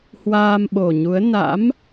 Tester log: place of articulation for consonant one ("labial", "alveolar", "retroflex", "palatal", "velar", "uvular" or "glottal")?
glottal